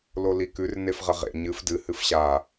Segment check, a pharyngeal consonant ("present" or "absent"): absent